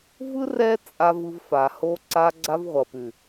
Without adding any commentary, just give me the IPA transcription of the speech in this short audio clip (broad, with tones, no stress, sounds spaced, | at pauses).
v ɯ˦ r ɛ˦ t͡sʼ a˧ v ɯ˧ v f a˨ h o˧ ǀ a˧ ɡ͡ǀ a˧ v ʁʷ ʌ˨ p ʉ˨